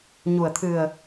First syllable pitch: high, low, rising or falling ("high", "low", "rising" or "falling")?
low